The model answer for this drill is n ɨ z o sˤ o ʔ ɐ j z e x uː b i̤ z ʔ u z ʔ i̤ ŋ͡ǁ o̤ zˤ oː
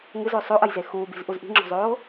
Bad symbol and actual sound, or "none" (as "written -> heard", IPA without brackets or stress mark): n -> ŋ